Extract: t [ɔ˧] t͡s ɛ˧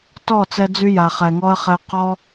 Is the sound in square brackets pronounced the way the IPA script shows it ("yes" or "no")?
no